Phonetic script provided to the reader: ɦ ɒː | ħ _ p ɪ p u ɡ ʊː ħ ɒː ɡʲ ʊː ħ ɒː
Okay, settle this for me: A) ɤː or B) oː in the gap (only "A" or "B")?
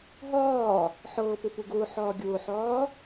A